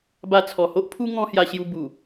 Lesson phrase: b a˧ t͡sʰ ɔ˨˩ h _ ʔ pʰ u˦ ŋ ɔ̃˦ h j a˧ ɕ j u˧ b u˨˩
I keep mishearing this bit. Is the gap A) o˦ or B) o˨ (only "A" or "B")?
A